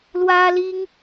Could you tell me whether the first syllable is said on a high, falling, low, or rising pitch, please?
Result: high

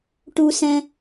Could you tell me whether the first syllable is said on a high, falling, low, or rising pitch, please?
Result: high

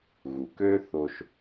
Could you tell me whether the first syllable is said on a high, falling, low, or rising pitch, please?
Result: low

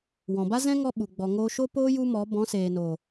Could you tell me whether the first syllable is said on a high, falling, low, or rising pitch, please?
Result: low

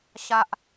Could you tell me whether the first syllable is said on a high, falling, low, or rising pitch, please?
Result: low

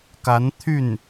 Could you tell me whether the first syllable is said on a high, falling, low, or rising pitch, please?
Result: rising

